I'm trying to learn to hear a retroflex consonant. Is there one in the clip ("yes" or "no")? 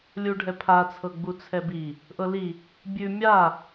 yes